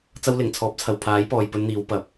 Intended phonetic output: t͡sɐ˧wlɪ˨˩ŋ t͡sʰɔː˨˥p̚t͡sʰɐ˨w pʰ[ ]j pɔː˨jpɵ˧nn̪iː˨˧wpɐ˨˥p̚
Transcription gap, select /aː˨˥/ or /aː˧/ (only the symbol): aː˨˥